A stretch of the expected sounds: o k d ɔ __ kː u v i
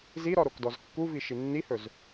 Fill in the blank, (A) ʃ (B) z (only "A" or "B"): B